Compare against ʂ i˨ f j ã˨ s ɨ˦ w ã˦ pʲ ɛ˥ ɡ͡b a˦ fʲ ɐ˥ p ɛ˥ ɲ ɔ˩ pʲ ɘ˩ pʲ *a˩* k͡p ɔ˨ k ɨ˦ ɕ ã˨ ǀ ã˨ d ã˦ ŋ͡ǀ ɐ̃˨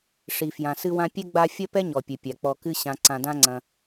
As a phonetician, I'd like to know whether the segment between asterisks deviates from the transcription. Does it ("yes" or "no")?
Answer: no